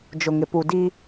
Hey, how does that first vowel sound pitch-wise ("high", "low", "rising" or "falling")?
low